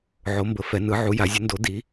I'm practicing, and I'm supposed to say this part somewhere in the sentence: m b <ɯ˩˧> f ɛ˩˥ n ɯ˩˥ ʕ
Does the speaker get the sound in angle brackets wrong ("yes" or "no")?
yes